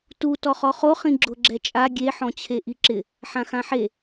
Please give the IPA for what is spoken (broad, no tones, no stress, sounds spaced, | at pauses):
t u t ɔ χ ɔ χ o χ ĩ ɡ͡ǁ ʊ ɡ͡ǁ ɛ t͡ʃʼ a ɡʲ e ħ ɔ̃ t͡ɕʰ e ʔ i ǁ ɪ | ħ ã x ã ħ e